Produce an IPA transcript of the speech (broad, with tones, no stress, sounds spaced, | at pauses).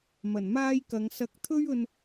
m ɐ˨˩ n m aː˥ j k ɐ˨˧ ŋ s ɐ˧ k̚ t̪ʰ ɵ˥ ɥ ɵ˧ n